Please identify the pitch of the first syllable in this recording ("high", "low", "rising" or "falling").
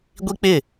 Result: high